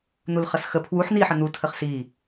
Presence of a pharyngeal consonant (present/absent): present